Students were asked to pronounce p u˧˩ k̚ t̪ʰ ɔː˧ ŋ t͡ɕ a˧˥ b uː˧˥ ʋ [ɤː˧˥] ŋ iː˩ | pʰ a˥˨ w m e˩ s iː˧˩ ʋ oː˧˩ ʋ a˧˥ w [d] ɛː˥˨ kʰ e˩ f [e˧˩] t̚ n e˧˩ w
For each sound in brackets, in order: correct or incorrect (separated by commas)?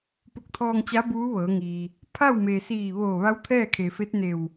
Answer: incorrect, incorrect, incorrect